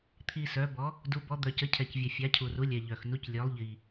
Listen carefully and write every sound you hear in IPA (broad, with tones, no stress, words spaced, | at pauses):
t̪ʰi˩ sœ˩˧bɔ˩˧ | du˩˧bɔ˩˧ d̪œ˩cə˩˧ cʰɛ˩cvʲɛ˩fʲa˩˧cʰu˩ ru˩˧lʲɛ˩ ʎœ˩x nu˩˧clʲœ˩˧lˠ ʎi˩